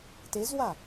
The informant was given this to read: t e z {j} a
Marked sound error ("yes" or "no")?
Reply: yes